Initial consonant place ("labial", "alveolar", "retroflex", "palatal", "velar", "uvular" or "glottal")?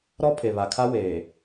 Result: alveolar